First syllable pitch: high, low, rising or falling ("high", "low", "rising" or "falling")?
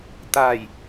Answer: low